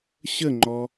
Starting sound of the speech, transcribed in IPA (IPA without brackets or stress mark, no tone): ɕ